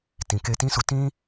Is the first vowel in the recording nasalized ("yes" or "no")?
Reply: yes